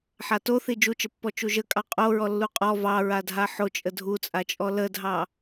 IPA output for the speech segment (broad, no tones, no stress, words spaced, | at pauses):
ħato θid͡ʒut͡ʃəpːɔ t͡ʃuʒəkʼɑ qʼo ɹɔlːuqʼɔ vɑɹadʱa ħo t͡ʃʼədʱut͡sʼat͡ʃʼɔ lədʱɑ